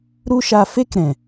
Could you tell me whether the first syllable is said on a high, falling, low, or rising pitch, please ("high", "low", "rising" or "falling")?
high